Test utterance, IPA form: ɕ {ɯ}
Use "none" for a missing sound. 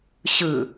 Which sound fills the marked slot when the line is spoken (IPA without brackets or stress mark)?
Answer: ɯ